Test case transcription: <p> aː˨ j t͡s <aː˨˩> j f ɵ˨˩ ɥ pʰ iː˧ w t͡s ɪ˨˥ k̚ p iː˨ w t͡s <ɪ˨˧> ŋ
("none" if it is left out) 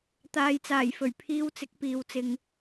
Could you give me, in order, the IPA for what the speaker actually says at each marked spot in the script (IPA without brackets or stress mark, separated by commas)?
t̪, aː˨˩, ɪ˧